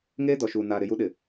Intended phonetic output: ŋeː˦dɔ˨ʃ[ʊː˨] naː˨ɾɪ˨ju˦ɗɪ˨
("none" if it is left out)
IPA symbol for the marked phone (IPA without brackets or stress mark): uː˨